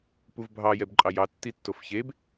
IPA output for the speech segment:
p u v bʱ ɑ j ɛ b ǃʼ ɑ j ɑ tː i tː o f ç e b

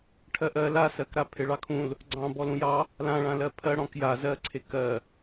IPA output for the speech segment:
ʈʰ ɜ ʔ ɜ l a s ɜ k ɾ a pʰ e ɭ ɑ kʰ ũ l | ɡ͡ǀ ɑ̃ b ɔ l ũ j ɑ | l ã ɭ ã l ɜ pʰ ɜ ɽ ɔ̃ k j a z ɜ ǀʰ e k ɜ

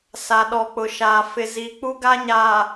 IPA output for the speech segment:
s a˨ ɗ ɔ˨ k͡p ʊ˨ ʃ aː˨ f ɪ˨ z i˨ k͡p u˦ ɡ a˦ ɲ aː˨

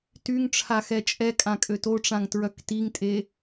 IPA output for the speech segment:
t y ŋ ʈ͡ʂʰ a x ɛ t͡ʃʼ ɛ kʼ ã kʼ ø t o ʈ͡ʂ ã ŋ t ɹ œ k t i ŋ tʼ e

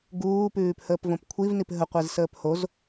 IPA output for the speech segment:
ɡ uː p ʉː p h əː p v õ p kʷʰ i v n i p ɦ ə qʷ e z s əː p h o z

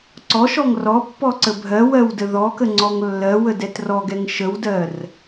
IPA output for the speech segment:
ǀ ɔ ʃ ɔ ŋ r ɔ pː ɔ ǀ ə bʱ ɜ w ɜ w d ə ð ɔ k ə ŋ͡ǀ ɔ ŋ lː ɜ w ə d ɛ t r ɔ ɡ ɛ ŋ ʃ ə w d ɜ r

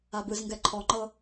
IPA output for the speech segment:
a b ɯ z ŋ ɡ ɛ ǃʰ ɔ ŋ͡ǃ ɤ

